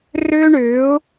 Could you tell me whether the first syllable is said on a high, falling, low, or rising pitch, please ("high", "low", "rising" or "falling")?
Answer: high